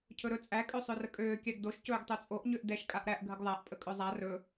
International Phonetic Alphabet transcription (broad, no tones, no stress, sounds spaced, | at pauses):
cʰ ɵ ɾ ɵ t͡sʼ æ kʼ ø sˤ ø r ə kʼ øː kʲ æ ɡ d o ʃ c ɵː ɡ tˤ ø t͡sʼ o ʔ ɲ ø ʔ d ɛ ʃ kʼ a ʔ ɾ æ ʔ ɡʱ ə ɡ ðˤ æ ʔ pʼ ə kʼ ɵ zˤ a r ɵ